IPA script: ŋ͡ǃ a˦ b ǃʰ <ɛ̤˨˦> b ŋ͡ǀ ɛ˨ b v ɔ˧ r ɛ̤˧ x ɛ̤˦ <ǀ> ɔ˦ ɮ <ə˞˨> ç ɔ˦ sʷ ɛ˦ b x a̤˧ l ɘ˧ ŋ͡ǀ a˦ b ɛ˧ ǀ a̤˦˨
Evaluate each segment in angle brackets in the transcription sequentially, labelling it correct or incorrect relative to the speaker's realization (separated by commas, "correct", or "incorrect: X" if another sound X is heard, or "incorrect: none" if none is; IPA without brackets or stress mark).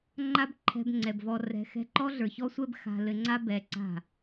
incorrect: ɛ̤˧, incorrect: ǃ, correct